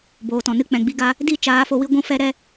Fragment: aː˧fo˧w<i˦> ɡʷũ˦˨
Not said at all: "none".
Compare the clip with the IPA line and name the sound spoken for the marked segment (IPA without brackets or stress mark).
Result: i˦